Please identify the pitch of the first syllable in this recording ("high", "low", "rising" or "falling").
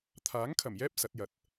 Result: rising